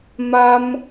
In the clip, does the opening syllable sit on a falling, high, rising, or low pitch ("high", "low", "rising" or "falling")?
high